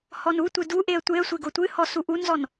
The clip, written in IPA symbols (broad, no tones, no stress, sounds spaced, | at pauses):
h ɔ n u tʷ ɨ d u ʔ e ə̯ tʷ e ə̯ sʷ e ɡ o tʷ ɨ h ɔ s u ʔ u n z ɔ n